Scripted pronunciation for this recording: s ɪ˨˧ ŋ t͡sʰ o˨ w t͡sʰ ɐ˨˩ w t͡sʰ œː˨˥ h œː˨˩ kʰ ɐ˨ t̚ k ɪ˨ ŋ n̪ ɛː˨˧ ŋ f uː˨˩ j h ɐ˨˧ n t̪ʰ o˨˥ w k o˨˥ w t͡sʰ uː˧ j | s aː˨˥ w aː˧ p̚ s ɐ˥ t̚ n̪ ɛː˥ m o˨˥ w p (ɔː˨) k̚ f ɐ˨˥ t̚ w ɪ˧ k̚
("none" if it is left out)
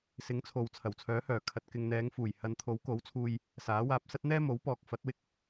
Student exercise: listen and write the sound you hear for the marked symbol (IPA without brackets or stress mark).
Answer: ɔː˨